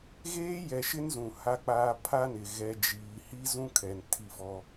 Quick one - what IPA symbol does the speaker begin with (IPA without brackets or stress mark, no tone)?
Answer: ɣ